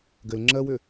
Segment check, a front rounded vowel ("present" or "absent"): present